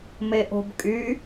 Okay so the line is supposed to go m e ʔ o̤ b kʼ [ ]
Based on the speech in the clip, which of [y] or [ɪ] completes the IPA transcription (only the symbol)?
y